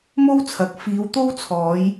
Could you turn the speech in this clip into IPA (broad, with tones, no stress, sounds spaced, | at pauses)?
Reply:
m o˥ w t͡sʰ ɐ˨˥ k̚ f iː˨˧ w t̪ o˥ w t͡sʰ ɔː˨˧ j